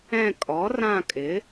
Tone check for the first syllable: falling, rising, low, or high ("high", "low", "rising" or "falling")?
falling